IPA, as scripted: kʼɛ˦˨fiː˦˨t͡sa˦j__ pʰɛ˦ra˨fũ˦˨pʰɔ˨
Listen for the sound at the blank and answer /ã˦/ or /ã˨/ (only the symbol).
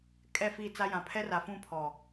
ã˨